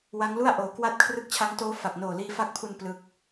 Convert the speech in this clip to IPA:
w a˦˥ ŋ l u˥˩ a̯ ʔ oː˩˦ k w a˦˥ t̚ kʰ r ɯ˦˥ k̚ t͡ɕʰ a˦˥ ŋ t oː˦˥ f a˨˩ k̚ n oː˨˩ l iː˧ f a˦˥ k̚ pʰ u˧ n p l ɯ˦˥ k̚

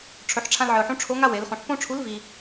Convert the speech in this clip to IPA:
ʈ͡ʂʰ ɵ˩˧ ħ ʈ͡ʂʰ ã˧ l ʕ ɨ˩ ʊ̯ ħ ũ˧˥ ʈ͡ʂʰ o˧˥ ŋ a˥ w e˩˧ l χ ũ˩˧ ħ p õ˥ ʈ͡ʂʰ u˧˥ l v i˧

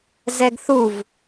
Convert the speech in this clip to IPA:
z ɛ ɡ θ u v

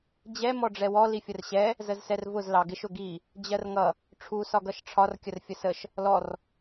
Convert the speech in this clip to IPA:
d͡ʑ ɛ m ɔ ɖ͡ʐ ɛ w ɔ l i fʲ ə r ɕ ɛ | z ə z s ɛ r v ʊ z l ɑ ɡ ɪ ʃ ʊ ɡ i | d͡ʑ ɜ r ŋ ʌ | ʈ͡ʂʰ u s ɒ ɡ ʌ ʃ ʈ͡ʂʰ ɒ r kʲ ə r fʲ ə s ə ʃ | l ɔ r

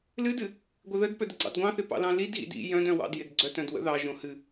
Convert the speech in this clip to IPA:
l ɨ d ɨ | ɡʷ ɪ ð ə d p œ d ə ɡ͡ǀ ɑ̰ d ɡʷ ɑ̃ θ ɪ p ɑ̰ l ɑ̃ l i d ɣ ḭ d ḭ j œ̃ d œ̃ w ɑ̰ d j ɪ d ɡ͡ǀ œ t œ̃ d w ə̰ ð ɑ ʒ õ h ɨ

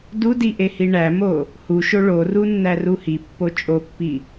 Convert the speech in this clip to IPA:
d u d i ʔ e h i ɳ æ m o | h u ʃ o ɭ o r u nː æ r u h i pː o t͡ʃʼ o pː i

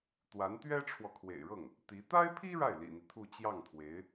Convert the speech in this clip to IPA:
t̪ w a˧˥ n t̪ ɥ ɛ˥ ʈ͡ʂʰ w ɔ˨ kʰ w ḛ˨˩ ɪ̯ ɻ ɤ˥˩ ŋ | t̪ i˧˥ t̪ a˥ ɪ̯ pʰ i˥ ɻ a˥˩ ɪ̯ l ḭ˨˩ n̪ i˦ t̪ʰ u˥˧ t͡ɕ j ɑ˥˩ ŋ t̪ʰ w e˧˥ ɪ̯

